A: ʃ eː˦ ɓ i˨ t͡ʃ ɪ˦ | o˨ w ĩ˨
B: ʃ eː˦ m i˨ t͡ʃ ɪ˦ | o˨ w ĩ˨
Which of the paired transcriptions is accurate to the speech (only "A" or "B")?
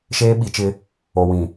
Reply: A